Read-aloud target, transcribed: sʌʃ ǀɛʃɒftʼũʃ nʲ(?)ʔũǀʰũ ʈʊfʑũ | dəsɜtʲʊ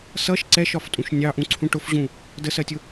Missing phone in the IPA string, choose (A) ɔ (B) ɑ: B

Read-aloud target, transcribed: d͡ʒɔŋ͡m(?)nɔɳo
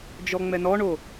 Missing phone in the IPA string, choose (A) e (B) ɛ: B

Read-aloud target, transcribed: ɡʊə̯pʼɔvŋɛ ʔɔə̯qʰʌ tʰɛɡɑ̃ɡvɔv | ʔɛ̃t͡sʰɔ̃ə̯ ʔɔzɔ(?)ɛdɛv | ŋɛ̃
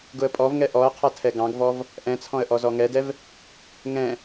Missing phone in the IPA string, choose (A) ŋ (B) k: A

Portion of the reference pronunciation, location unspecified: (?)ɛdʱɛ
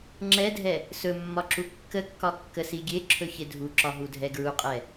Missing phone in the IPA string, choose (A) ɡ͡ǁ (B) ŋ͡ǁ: B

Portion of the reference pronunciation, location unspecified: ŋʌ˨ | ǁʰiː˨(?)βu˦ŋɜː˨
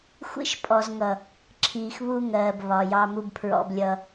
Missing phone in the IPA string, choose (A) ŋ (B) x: B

